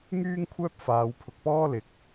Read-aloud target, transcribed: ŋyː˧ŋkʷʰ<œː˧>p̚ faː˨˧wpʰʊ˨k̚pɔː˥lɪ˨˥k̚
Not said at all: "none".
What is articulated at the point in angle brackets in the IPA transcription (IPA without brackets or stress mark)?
œː˧